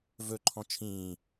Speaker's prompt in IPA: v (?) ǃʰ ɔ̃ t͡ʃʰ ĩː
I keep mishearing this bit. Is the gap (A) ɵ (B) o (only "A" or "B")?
A